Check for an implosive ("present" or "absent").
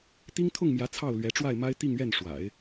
absent